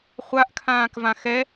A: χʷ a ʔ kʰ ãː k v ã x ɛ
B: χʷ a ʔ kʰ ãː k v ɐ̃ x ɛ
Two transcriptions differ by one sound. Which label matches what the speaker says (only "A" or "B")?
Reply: A